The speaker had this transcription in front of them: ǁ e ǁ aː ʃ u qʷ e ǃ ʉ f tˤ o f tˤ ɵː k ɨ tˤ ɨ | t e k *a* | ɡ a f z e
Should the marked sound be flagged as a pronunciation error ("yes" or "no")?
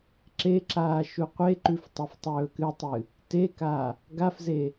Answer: no